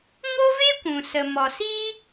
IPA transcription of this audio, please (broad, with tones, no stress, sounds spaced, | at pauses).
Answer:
ŋ o˦ v e˦ kʷ ũ˨ s ə˨ m ɔ˨ s iː˦